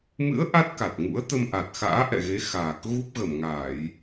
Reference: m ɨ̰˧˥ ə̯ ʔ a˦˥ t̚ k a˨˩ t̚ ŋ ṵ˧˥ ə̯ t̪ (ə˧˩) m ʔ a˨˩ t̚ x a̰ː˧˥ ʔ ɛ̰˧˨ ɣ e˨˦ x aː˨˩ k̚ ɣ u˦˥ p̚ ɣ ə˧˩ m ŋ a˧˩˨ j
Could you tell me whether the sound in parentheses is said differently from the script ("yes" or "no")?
yes